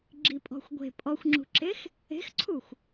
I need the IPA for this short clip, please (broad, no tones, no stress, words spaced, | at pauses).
ɡ͡ǁipʼɔ̤xʷɡʷe̤ pʼɔxʷŋ͡ǁṳǁex | e̤xǀʰuxʷ